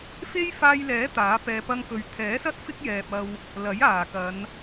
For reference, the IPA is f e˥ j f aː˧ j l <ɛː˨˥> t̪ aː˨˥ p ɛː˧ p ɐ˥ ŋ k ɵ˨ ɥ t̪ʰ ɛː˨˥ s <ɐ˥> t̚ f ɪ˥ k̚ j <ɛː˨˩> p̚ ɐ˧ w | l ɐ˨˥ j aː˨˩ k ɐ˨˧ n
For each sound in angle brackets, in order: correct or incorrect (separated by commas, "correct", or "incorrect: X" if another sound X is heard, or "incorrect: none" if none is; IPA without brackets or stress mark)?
correct, correct, incorrect: ɛː˨